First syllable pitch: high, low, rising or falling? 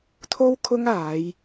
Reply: high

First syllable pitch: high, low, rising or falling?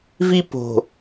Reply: high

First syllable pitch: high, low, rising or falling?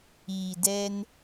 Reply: low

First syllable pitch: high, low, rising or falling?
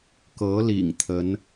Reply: rising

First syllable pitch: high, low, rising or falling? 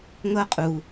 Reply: high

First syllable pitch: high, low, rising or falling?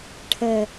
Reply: low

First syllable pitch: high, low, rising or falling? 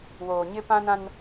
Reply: low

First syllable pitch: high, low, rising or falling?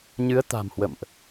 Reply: rising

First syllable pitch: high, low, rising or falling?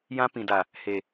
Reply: high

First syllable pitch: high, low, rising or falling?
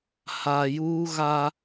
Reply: low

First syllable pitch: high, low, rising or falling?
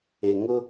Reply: low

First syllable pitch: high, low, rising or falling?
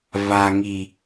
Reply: low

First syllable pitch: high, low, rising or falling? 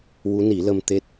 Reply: rising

